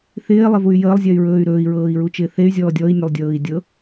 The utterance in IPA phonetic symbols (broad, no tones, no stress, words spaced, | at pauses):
θɪːlˠɪvuy̯ jəːlˠzʲɛy̯ɹɵːy̯ ɾɵːi̯ɹɤːi̯ɹut͡ʃɪː θey̯zʲɔː dʲɔi̯nʲəlˠdʲɤːi̯ dʲɤ